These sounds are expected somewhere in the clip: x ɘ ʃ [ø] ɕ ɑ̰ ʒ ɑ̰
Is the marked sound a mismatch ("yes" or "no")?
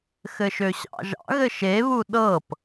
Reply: no